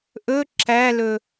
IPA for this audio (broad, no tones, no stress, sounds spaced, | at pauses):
ʔ ɵ ǁ æ l ɵ